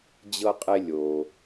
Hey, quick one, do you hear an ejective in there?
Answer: yes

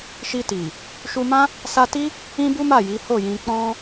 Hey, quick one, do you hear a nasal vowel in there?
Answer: yes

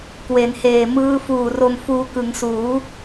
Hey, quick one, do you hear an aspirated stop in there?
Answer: no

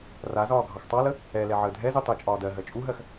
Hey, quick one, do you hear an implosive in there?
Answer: no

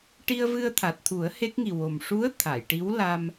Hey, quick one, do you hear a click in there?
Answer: no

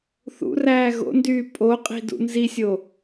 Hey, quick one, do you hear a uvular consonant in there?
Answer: yes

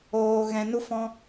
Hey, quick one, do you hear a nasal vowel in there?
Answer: yes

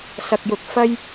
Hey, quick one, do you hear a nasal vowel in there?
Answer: no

